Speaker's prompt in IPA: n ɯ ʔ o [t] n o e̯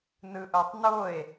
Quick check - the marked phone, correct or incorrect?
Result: incorrect